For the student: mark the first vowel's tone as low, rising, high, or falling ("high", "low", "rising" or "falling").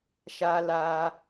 high